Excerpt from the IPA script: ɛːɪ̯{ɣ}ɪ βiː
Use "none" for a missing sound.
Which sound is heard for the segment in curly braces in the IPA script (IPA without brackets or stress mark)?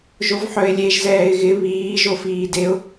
ɣ